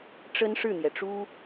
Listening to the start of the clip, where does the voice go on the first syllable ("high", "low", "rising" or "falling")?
high